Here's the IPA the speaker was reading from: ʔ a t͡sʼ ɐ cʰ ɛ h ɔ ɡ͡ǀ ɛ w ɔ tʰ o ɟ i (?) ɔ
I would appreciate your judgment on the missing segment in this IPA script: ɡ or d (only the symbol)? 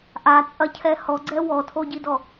d